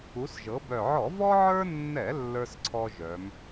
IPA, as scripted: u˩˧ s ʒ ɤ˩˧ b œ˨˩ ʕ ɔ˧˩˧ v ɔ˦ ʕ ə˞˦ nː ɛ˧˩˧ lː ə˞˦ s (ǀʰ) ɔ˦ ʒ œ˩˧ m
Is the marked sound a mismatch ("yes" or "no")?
no